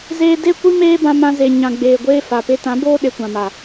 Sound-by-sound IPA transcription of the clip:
z eː˧ d e˦˨ kʷ i˦ m eː˦ b ã˧ m ã˧ z e˨ ɲ ã˨ ɡ͡b eː˨ ɡʷ eː˧ f a˨ p e˧ t ã˨˦ b oː˦ ɗ e˧ kʷ ã˨ m a˨

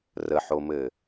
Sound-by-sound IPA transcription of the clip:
r ə ħ o m ɘ

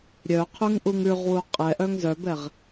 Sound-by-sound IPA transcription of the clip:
ɾʲ œ qʰ ʉ ŋ ʔ u ŋ ʉ ʁ w u qʼ ɛ ʔ œ ŋ z œ b ɛ ʁ

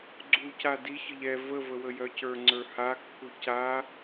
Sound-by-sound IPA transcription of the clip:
ɡ͡ǀ u c a d i ç ə ʎ ɛ v ə v ə w ə j œ c ə˞ ŋ͡ǀ ə˞ h a kː u c a

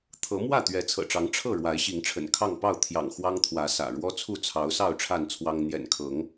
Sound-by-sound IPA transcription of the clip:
t̪ʰ ɤ˨˦ m w ä˥˨ t̪ ɥ ɛ˨˦ t͡sʰ ɤ̰˨˩ ʈ͡ʂ ɑ˨˦ ŋ ʈ͡ʂʰ ɤ˥˨ ɻ w a˨˦ ɪ̯ ɕ i˨˦ ŋ ʈ͡ʂʰ ə̰˨˩ n kʰ ɑ˥˨ ŋ p ɑ˥˨ ʊ̯ t̪ʰ j ɑ̰˨˩ ŋ x w ɑ˦ ŋ t̪ʰ w ä˨˦ s ä̰˨˩ ɻ w ɔ˦ t͡sʰ u˥˨ t͡sʰ ɑ˨˦ ʊ̯ s ɑ˥˨ ʊ̯ ʈ͡ʂʰ a˥˨ n t͡sʰ w ɑ˦ ŋ n̪ j ɛ̰˨˩ n kʰ ɤ˨˦ ŋ

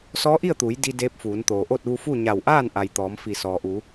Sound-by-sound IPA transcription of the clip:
s ɔː˧˥ ʔ i˥˨ ə̯ t̪ uː˩˧ j d i˧ d eː˧˥ p̚ f uː˩˧ n t̪ oː˩ ʔ o˥˨ t̚ ʋ u˧ f u˥˨ ɲ a˧˩ w ʔ aː˥˨ n ʔ a˩ j t̪ ɔː˩˧ m f i˧˩ s ɔː˩ ʔ u˩˧

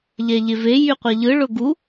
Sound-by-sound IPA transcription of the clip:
ʎ ɛ ʎ e v e j y qʷ ɛ ʎ ɯ ɭ ʊ ɡ u

